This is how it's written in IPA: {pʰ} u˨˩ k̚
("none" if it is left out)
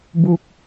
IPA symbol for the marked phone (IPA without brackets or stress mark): b